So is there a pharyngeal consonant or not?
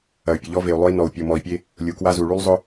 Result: no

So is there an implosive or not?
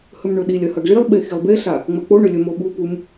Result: yes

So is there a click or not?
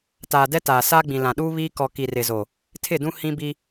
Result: no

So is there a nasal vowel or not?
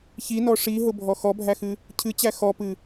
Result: no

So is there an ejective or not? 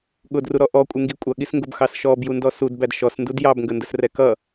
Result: yes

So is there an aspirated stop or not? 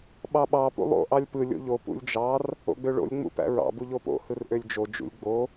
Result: no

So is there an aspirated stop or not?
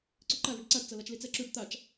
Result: no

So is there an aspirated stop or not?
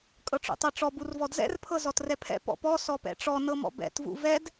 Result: yes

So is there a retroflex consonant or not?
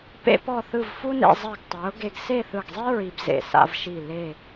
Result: no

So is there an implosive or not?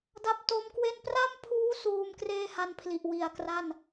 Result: no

